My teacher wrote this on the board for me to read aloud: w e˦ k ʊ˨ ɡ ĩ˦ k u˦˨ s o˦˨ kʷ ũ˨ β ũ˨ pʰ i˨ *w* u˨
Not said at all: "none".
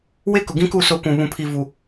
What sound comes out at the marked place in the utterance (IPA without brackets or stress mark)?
v